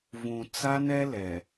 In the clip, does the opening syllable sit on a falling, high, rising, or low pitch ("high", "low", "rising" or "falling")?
low